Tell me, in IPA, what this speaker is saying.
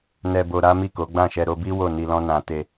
n ɛ˧ b o˧ ɾ a˦ m i˦˨ k o˨˦ ɡ͡b ã˦˨ ʃ ɛ˧ ɾ o˧ b i˦ w o˦˨ n i˧ l ɔ̃˦ n ã˧ t e˧

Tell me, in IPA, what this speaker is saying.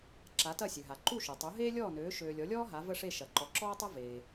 ǁ a˩˥ t ɐ˥˩ sʲ ø˩ ɦ a˩ ǃ u˥˩ ʃ u˩ tˤ u˩˥ ɦ eː˥ lʲ ɔː˥˩ n øː˩˥ ʃ øː˧ lʲ ɔ˩˥ lʲ ɔː˥ ɦ a˩˥ v ə˥˩ ʂ e˥˩ ʃ ɐ˩ ǃ ɔ˩˥ ǁ ɔː˥ tˤ ɐ˥ v eː˩

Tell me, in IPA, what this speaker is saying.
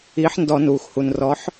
iː˨˥ ħ n d ɔ˧˩˧ n uː˩ x h u˩ n r ɔ˨˥ ħ

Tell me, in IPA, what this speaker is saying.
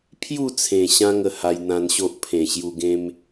pʰ j u˥˧ t͡sʰ ẽ˨˩ ɕ ã˧ ŋ ə˨˩ h a˧ j n̪ ã˧ n ɕ o˦ ʔ pʰ ẽ˨˩ ɕ j u˧ ɡ ẽ˦ m

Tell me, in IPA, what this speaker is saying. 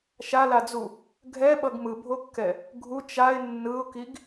ʃ a l a d͡z u | ɡʱ ɛ ɓ ʌ ɡ m ɯ bʱ o kː ɛ | ɡʱ u t͡ʃ a ɪ̯ nː ɯ ʊ̯ k i ɡ

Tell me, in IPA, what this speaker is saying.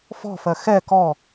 f ɔ̤ f ɜ x ɛ k ɔ

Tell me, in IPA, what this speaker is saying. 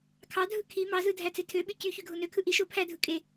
kʰ ɑ dʱ ɯ kʰ i m ɑ z ɯ dʱ æ t͡s e tʰ ø ɓ y c y ç y ɡʱ o n ø kʰ ɯ ʔ i ʃ o pʰ æ dʱ ɯ kʼ e

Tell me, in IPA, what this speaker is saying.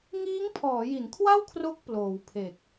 ŋ iː˦˥ ŋ pʰ ɔː˩˦ j i˩˦ n kʰ w a˥˩ w kʰ r o˦˥ k̚ p l oː˩˦ w pʰ e˨˩ k̚

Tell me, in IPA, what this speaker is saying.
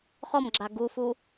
χ ɔ m ɡ͡ǁ a ɡ u f u

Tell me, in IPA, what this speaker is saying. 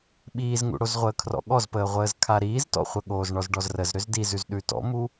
ɓ iː z ŋ ṵ ɽ o z ʁʷ əː kʰ r ɔ̰ ɠ ɔ z p əː ʁʷ əː z kʰ a ɾ iː z t ɔ̰ χʷ ə ɠ oː z ɳ ɔ z ɖ ɔ z r ə z ɾ ʏ z d i z ʉ z ɗ ʉ t ɔ̰ m u

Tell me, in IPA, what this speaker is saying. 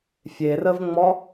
fʲ e r ə v ŋ͡m ɔ

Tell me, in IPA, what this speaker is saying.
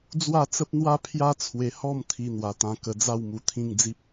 d͡z w a˥˧ t͡s ə˦ p̚ n̪ w a˦ pʰ j a˦ t͡sʰ w e˧ h ɔ˥˧ m t̪ʰ i˧ n̪ w a˧ t̪ ã˧ k ə˧ d͡z a˥˧ w m u˧ t̪ʰ ĩ˥˧ ŋ d͡z i˦ p̚

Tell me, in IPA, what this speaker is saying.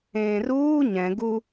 ẽː r uː ɲ ɛ̃ ɡ u

